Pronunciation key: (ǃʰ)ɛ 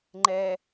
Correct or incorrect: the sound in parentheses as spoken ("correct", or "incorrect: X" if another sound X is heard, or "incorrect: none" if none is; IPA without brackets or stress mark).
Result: incorrect: ŋ͡ǃ